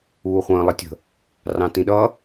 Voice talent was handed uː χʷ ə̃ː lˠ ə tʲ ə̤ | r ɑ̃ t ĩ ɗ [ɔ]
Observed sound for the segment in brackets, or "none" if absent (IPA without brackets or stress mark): ʌ